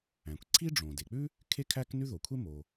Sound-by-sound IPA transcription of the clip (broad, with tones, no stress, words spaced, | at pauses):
æ̃˩kʷǀʰi˥ɖ͡ʐõ˩ de˩k͡pʉ˥ | kʰe˥kʰæ˥k nʉ˥ðo˩kʷʰe˥ mo˩